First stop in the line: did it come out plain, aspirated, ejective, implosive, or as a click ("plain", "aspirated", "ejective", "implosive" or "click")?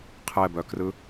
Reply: aspirated